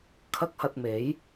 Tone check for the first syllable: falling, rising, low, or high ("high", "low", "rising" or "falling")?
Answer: high